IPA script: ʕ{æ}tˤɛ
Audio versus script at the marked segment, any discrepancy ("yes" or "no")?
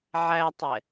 no